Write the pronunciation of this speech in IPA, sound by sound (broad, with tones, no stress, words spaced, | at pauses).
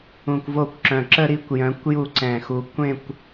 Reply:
ũ˧˩kʷvo˥˧kʷǁœ̃˧˩ ǁə˥˧ɾi˥˧kʷ jœ̃˨˥kʷju˥˧ǀɛ̃˧˩xu˧˩ kʷẽ˥˧kʷ